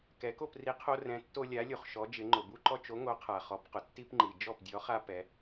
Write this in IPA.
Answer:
k ɛ˩˧ k o˥˩ p r i˨˥ qʰ o˦ r ɛ̃˨˥ tː o˦ lʲ a˨˥ lʲ u˩ χ ʃ ɔ˩˧ d͡ʒ ɪ˩˧ ŋ͡ǃ ʊ˩ b u˦ ǃ ɔ˦ t͡ʃ o˨˥ ŋ o˨˥ qʰ a˩ χ ɔ˩˧ p q ʊ˩ tː i˦ p ŋ͡ǃ i˩ d͡ʒ ɔ˥˩ p dʲ ɔ˨˥ χ a˦ p ɛ˩˧

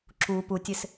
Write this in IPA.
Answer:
ǁ u p u tʲ ɪ s

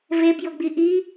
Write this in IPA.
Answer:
v e b j ʊ ɡ͡b i ʔ i

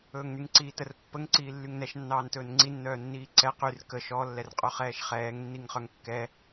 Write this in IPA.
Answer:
ɵː ŋ n y ŋ ǀ iː t ə r pː ə ŋ ǀ iː lː y ŋ n ɛ ʃ nː ɑː n t ɵː n ŋ͡ǀ i nː œː nː iː ǀ ɛ q y r k ə ʃ ɔ lː ɛ r qʼ œ χ ɛː ʃ χ ɛː ŋ nː i ŋ χ œ ŋ kː ɛ

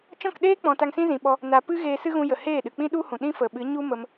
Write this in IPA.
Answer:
t͡ʃ ɔ̃˦˨ k ɗ eː˦ k͡p ɔ̃˨ t a˧ ŋ s ĩ˦ z ĩ˨ ɓ ɔ˧ | n a˨ p ɨ˦ ɣ eː˧ s ɨ˦ ɣ ũ˧ j ə˨ h eː˦˨ ɗ ɨ˨ k͡p ĩ˦ ɗ u˦ h ũ˨ ɗ ĩ˦ f ə˨ ɓ ɨ˨˦ ɲ u˦ m ə˧ m

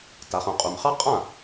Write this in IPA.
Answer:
t a˩˧ χ ũ˩ qʼ u˩ m χ ɑ˥ qʼ ã˥˩

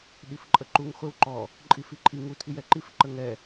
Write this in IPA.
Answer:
ɗ i f ǃʼ ə ǃ u ŋ χʷ e w ǃ ɔ | ǃʼ i f i ǃʼ i ŋ u tʰ i j ɛ ǃ i f ǃ ə ŋ ɛ

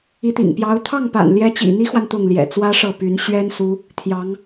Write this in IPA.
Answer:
i˧˥ t̪ ḭ˨˩ ŋ p j ɑ˧˥ ʊ̯ t̪ʰ ɑ˥˩ ŋ p a̰˨˩ n l j ɛ˧˥ t͡ɕ ḭ˨˩ n̪ i˥ x w a˨ n t̪ ʊ˥˩ ŋ l j ɛ̰˨˩ t͡s w ä˥ ʂ ɤ˥˩ p y˧˥ n ɕ ɥ ɛ˥ n s u˧˥ | t̪ʰ j ɑ˧˥ ŋ

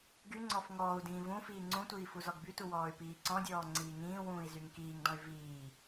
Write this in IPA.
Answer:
ɡ y ŋ͡ǀ ɔ f ŋ ɔː u̯ d ĩː v ũ f iː ŋ͡ǀ ũ tʷ iː f u z ɔ ɡ b y t u w ɔː y̯ p iː ǀ ɔ̃ dʲ ɔː ŋ͡ǀ iː ŋ ĩː w ũː i̯ z y ŋ k iː ŋ d ɔ̃ y̯ v iː

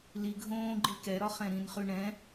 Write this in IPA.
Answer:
l i ɡʱ õː ɡ͡ǃ i k ɛ ɾ ɒ χ ɛ̃ ɾ ĩ n χ ʉ ɳ ɛ̃

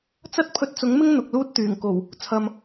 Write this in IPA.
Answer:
t͡s ɐ˥ t̚ pʰ ɵ˧ t̚ t͡s ʊ˨˥ ŋ m ɪ˥ ŋ n̪ ʊ˨ k̚ l uː˧ t̚ t̪ yː˨˩ ŋ k o˨˩ w | t͡sʰ ɐ˨ m

